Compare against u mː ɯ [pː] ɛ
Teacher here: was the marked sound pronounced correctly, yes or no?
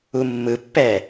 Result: yes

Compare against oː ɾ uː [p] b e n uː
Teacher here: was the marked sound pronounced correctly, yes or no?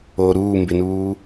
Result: no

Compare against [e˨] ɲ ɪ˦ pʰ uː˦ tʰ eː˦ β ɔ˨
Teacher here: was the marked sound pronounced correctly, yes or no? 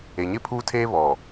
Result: yes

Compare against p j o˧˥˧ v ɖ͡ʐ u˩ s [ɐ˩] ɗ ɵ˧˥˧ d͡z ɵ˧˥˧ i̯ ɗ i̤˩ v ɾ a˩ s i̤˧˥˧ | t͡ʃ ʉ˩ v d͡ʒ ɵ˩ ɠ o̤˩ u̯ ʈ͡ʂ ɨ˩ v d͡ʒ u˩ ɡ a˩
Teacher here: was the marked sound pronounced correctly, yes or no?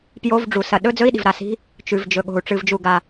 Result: yes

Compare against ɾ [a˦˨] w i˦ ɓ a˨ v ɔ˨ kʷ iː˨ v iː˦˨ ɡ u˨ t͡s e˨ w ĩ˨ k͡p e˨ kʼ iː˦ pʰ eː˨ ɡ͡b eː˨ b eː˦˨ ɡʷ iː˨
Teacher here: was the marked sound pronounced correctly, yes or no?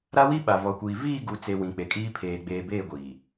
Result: no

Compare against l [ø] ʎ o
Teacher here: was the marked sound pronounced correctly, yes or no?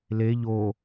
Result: no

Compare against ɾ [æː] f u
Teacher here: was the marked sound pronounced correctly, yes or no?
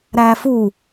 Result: yes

